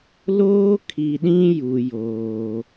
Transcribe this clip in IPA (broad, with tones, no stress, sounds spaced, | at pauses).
l oː˦ kʰ i˨ ɗ ĩ˦ j u˨ j oː˨